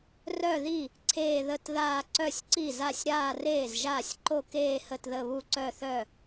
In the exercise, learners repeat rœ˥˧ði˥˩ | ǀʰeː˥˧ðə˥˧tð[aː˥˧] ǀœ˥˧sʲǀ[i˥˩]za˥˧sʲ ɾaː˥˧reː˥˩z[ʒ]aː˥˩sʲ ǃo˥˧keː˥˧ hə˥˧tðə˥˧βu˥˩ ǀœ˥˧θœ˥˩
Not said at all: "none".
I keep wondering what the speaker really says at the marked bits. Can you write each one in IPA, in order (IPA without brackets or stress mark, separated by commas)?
aː˥˧, i˥˩, ʒ